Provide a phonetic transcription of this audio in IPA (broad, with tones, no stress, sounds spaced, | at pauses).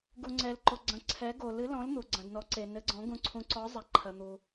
ɡ u˨ ŋ͡ǀ ɛ˨ l ǃ o˨ ɡ͡ǀ ɐ̃˨ ǀʰ ɛ˨˦ ɡ o˨ l ɨ˨˦ l ɔ̃˨˦ l n̪ u˨ ɡ͡ǀ ɐ̃˨ d n ɔ˨˦ ǀ e˨ n ɘ˨˦ ɡ͡ǀ ɔ̃˨˦ ɡ ũ˨˦ ǀʰ ũ˨˦ ǀ ɔ˨˦ zˤ ɛ˨ ǃʰ ɐ˨ n̪ u˨